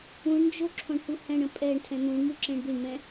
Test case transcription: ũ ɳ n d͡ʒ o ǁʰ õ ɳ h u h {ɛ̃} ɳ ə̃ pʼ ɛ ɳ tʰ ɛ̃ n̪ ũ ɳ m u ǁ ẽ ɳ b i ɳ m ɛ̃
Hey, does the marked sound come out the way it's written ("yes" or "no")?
yes